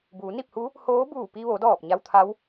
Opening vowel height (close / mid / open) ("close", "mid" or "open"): close